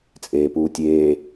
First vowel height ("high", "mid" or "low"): mid